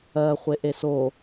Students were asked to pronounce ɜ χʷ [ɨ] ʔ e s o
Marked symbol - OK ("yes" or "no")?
no